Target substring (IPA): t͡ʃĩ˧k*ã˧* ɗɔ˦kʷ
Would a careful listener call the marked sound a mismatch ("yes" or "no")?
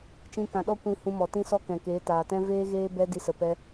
yes